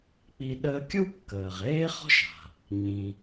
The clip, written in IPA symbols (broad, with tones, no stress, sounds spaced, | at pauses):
k͡p i˧ ɗ əː˧ kʲ u˥ kː əː˩ ʁ eː˥ χ ɔ̤˥ ʃ a̤˩ | ɲ ĩ˩